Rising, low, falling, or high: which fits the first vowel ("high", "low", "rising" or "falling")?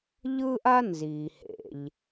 high